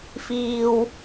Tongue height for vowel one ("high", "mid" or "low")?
high